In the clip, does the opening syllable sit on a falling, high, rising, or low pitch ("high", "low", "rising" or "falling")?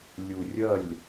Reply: low